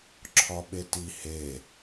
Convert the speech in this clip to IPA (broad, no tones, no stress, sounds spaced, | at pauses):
ǁʰ ɒ ɓ e t i h e